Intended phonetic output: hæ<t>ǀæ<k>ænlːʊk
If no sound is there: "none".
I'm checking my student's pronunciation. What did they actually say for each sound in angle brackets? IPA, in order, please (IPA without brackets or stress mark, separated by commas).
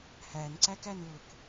n, k